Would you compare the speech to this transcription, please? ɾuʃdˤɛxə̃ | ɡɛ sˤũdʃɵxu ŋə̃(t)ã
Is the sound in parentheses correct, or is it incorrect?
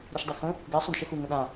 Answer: incorrect